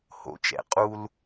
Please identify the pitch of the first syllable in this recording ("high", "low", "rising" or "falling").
rising